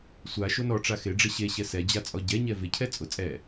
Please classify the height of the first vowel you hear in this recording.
low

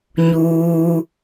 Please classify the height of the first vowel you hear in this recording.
high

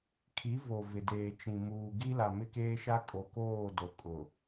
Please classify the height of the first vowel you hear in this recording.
high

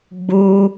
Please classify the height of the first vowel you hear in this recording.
high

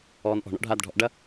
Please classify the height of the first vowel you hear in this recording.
mid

